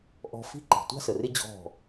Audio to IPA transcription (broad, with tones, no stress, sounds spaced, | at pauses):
ʔ ɔ̤˧ f i̤˦ ǃ i̤˨ tʷ a̤˦ s ə˨ r ɪ˦ d͡ʑ ɔ̤˦˨